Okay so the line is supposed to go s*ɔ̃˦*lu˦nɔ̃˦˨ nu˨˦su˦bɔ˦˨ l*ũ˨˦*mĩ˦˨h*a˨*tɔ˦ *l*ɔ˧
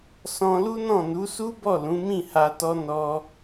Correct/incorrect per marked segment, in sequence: incorrect, correct, incorrect, incorrect

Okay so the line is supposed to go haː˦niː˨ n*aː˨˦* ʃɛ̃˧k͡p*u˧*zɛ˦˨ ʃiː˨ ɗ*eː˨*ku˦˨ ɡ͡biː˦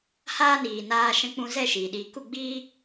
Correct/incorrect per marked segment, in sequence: incorrect, incorrect, incorrect

